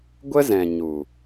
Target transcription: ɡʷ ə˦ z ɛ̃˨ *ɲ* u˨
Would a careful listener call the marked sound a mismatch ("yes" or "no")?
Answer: no